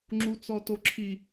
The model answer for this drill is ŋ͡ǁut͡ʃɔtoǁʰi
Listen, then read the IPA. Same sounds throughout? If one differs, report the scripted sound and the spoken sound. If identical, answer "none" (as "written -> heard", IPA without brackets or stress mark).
t͡ʃ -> t͡s